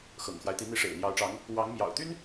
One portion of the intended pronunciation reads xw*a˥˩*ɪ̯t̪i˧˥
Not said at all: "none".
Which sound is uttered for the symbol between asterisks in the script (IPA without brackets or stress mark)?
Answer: a˦